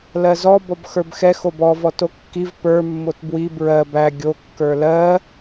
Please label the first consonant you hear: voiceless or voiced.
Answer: voiced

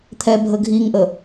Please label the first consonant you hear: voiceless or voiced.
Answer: voiceless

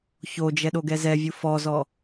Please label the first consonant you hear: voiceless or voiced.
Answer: voiceless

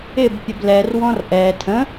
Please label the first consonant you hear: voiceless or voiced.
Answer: voiced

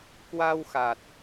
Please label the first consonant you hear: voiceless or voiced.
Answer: voiceless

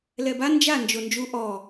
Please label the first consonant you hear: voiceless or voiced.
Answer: voiced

